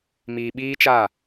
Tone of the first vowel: low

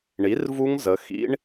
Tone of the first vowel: rising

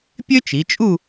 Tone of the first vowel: high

